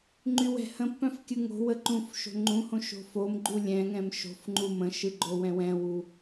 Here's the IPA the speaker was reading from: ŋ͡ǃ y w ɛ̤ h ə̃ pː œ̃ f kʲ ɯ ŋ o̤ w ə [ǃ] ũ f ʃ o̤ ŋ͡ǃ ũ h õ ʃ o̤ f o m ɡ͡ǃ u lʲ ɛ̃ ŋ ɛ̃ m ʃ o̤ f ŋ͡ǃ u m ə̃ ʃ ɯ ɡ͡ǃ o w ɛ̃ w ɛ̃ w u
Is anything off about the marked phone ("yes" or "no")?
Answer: no